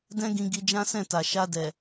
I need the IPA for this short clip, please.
d ɛ̃˦ ɡ ĩ˧ ɡ i˧ d͡ʒ ã˦ s ɛ̃˦˨ t a˨ ʃ a˧ d ɛ˨

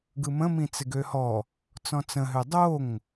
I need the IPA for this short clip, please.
ɡ ɯ m ə̃ m ĩ t͡s ɪ ɡ ø h ɔ | t͡s ɔ̃ t͡s ə̃ ɦ ø dˤ o ŋ

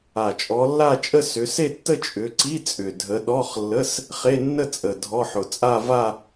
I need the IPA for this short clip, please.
a˨˩ t͡ʃʼ ɔ˨˦ lː a˥˧ t͡ʃʼ ə˥˧ s ʏ˨˦ s e˥˧ tː ə˥˧ t͡ʃʼ ʏ˨˦ ǀ i˧˥˧ t͡sʼ ʏ˨˩ dʱ ə˨˦ ɗ ɔ˧˥˧ χ lː ə˧˥˧ s | χ e˧˥˧ nː ə˥˧ t͡sʼ ə˨˩ dʱ ɔ˧˥˧ ħ ʊ˨˩ t͡sʼ a˥˧ v a˥˧

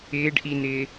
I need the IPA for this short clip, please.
ɪː ɖ ʔ i n ɪː

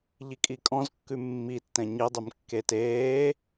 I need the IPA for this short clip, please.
ʎ i kʼ i kʼ ɔ̃ z kː ʉ mː i tː ɛ̃ ɲ i dˤ y m kː e t eː

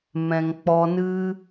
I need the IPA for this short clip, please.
m ɛ̃˨ ŋ k͡p ɔ˧ n ɨ˦

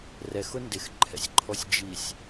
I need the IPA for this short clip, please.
r ɛ x ʊ n d ɪ x ǃʰ ɛ̰ sʲ ǃʰ ɔ sʲ d͡ʒ i sʲ

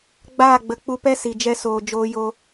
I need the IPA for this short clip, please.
ɡ͡b aː˦˨ ɡ͡b ə˨ k͡p u˧ p ɛ˦ s i˨ d͡ʒ ɛ˧ s oː˨ d͡ʒ oː˧ j o˧

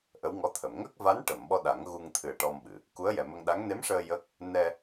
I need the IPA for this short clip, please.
ʔ ə˧˥ w ŋ ɔ˧˥ t̪ʰ ə˨˩˨ m ŋ əː˦˥ k̚ v a˧˥ n ʈ ə˨˩˨ m ɓ ɔ˧ ɗ a˨˩˦ ŋ ɣ u˧ ŋ t̪ʰ ɨ˨˩ ə̯ ʈ ɔ˧ m ɓ ɨ˨˩˨ | k u˧˥ ə̯ j ɛ˨˩ m ə˧ ŋ ɗ a˧˥ ŋ n e˧˥ m ʂ əː˧ j ə˦˥ k̚ | n ɛ˧

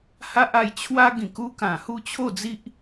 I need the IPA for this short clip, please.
h a˦ ʔ a˧ j t͡ɕʰ w a˦ ɡ ĩ˨˩ k u˧ k ã˨˩ h u˥˧ t͡ɕʰ o˥˧ d͡z i˦ ʔ

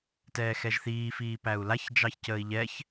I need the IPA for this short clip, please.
t ɛː x ɛ ʒ θ iː f iː p æ u̯ l a ç d͡ʒ ɑ ç c əː i̯ ʎ ɛ ç

